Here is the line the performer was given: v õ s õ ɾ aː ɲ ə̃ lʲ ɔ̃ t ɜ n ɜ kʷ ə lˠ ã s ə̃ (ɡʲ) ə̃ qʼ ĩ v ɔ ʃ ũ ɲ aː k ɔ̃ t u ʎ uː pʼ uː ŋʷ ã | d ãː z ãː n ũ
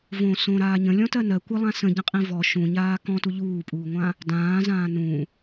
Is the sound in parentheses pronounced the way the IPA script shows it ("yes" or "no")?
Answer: no